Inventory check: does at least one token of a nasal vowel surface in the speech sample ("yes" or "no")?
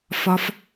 no